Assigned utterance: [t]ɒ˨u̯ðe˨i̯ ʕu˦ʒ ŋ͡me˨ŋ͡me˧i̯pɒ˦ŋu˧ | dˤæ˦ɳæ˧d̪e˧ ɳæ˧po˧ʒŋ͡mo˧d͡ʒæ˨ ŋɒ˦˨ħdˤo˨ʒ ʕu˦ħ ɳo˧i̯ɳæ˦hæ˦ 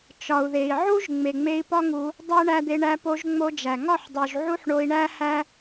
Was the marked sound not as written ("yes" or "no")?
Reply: yes